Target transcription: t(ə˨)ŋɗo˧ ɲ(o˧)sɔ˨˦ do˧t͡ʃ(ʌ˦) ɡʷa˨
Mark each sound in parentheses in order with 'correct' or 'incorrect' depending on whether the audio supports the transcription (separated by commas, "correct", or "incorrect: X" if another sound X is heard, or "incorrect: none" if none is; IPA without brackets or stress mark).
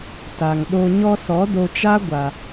incorrect: a˨, incorrect: ɔ˧, incorrect: a˦